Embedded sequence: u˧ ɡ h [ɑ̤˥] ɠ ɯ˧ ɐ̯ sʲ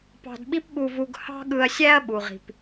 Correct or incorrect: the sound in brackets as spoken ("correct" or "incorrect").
correct